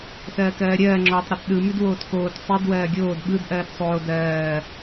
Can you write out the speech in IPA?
sɜːkɜːɾʲɜː ŋ͡ǁɔtˤ ɾʉtɗɯmʉd woːtkoːt sˤid wɜːɡʲoːd ɓɯd ʔɜːtsˤoː dɜː

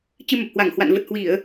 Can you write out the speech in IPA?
t͡ɕɨ˧mə˨˩p̚hwa˧˩ŋhwa̰˧˨n və˨˩t̚hwi˧˩˨ə̯

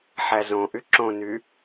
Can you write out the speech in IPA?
ħæzõ ʔyǁõny

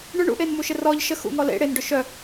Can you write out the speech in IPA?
ɳʏ ɳṵʔenmuʃɪ rɔʎ ʃə xṵŋɔ lḛ ɽen ɖʏʃœ

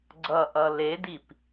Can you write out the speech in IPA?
ɡ͡ǀʌʔʌ ledip

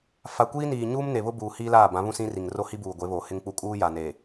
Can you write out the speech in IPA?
fa˨kʷiː˦niː˨ ɲuː˦mne˨βʊ˦ buː˨hiː˦laː˦˨bã˨˦ βũ˦sĩ˦ri˨ŋ ro˦hi˦buː˨ ɡʷe˨˦βo˨hɪ˦ŋk͡pu˦ kʼuː˦ja˨ne˨

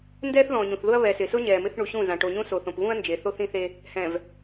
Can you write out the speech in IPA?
ndɛː˦θðɔ̃˨ɲũ˨θðʊ˦ɐ̯ βɛ˨sɪ˨sʊ˦ ɲɛː˨mɪ˦θ ɳu˨ɕũ˦˨zã˨ ʈo˨ɲũ˦ so˨θõ˨pβũ˦ɐ̯ nd͡ʒe˨θo˦θĩ˦θe˦ | hɛ̃˨v

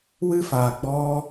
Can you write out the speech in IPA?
wɨ˦faː˨ ɡ͡bɔ˧

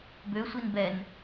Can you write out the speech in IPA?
bøsʷin bɛn

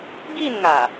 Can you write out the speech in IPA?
ɡi˥˧nŋa˨˩

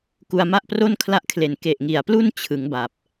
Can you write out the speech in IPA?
ku˧a̯ma˥˩ʔpro˥˩n kʰla˥˩ʔkʰle˨˩n ke˨˩ʔŋi˨˩a̯plu˥˩n t͡ɕʰɯ˩˦ŋba˨˩p̚

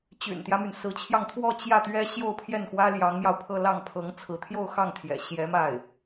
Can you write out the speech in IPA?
t͡ɕy̰˨˩nt̪jä˦my˩n sɹ̩˧˥t͡ɕʰjɑ˧ŋt̪ʰwɔ˥˧ t͡ɕjä˥˩t̪ɥɛ˥ ɕjo˥˧ʊ̯pʰjɛ˥˩nxwä˥ ljɑ˧˥ŋmjɑ˧ʊ̯pʰɤ˥˧ lɑ˥˩ŋpʰɤ˧˥ŋt͡sʰɹ̩˧˥ t̪ʰjo˥˧ʊ̯xɑ˥˩ŋt̪ʰjɛ̰˨˩ ɕjɛ˧˥ma˥˩ɪ̯

